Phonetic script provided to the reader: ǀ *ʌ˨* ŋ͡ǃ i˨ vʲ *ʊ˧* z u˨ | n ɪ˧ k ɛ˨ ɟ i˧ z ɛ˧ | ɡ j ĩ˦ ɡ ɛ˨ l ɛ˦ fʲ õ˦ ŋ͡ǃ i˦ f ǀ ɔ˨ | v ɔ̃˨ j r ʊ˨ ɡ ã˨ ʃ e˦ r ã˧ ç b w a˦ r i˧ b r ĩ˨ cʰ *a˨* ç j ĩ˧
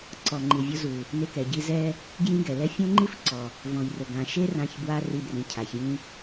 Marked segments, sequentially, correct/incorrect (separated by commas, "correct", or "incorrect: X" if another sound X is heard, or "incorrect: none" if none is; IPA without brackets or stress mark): incorrect: ɔ˨, correct, correct